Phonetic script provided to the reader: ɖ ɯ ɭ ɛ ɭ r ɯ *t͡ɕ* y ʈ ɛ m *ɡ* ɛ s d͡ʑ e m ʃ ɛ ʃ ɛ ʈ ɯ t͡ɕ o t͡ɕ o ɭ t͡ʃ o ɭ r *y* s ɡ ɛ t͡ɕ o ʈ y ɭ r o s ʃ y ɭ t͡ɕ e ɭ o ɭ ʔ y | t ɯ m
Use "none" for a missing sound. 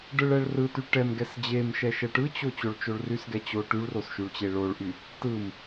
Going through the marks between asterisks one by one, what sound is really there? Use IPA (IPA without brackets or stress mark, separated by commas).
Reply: t, ɡ, y